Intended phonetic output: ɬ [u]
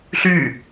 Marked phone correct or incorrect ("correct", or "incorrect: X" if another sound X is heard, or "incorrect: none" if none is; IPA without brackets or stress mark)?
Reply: incorrect: y